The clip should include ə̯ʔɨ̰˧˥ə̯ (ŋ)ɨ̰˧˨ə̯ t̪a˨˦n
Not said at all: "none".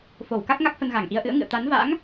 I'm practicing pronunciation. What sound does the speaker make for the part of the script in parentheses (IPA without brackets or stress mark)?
ŋ